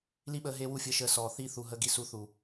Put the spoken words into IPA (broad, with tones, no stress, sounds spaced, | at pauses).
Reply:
l i˦ ɓ əː˧ ɦ eː˦ w u˦ fʲ əː˧ ʃ əː˧ s ɔː˨ θ iː˧ θ u˨ ɦ əː˧ ɡ i˧ s u˨˦ θ uː˨